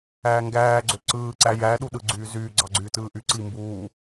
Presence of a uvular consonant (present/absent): absent